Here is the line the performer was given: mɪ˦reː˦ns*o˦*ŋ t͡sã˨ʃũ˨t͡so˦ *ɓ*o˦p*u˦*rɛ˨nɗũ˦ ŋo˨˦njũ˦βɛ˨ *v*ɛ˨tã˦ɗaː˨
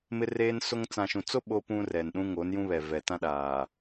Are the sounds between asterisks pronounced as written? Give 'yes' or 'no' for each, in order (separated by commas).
yes, yes, no, yes